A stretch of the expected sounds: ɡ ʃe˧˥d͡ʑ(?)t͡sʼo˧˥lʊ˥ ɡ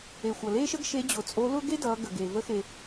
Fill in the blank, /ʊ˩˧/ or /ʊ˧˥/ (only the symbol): ʊ˩˧